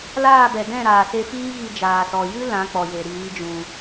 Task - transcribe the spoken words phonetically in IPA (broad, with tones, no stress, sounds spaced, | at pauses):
l aː˦˨ b ɛ˨ d ɛ̃˦˨ ɾ aː˨ s e˧ f iː˦ ɣ i˧ d͡ʒ aː˨ s ɔ˨ j ɨ˦ l ã˨˦ k͡p ɔ˨ j e˨ ɾ iː˨˦ d͡ʒ ũ˧